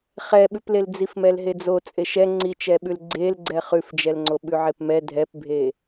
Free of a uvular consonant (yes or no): no